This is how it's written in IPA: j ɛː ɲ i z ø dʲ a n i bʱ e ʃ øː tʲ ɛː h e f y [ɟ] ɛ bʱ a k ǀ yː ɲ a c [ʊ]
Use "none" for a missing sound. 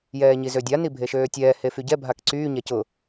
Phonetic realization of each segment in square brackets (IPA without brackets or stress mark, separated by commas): ɟ, ʊ